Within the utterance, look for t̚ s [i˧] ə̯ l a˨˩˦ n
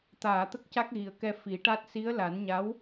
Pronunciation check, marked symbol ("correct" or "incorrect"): incorrect